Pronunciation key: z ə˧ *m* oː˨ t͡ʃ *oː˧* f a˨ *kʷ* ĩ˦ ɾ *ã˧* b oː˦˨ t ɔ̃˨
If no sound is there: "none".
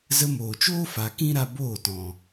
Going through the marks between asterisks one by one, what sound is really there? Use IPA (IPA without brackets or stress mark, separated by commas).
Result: m, oː˦, k, a˧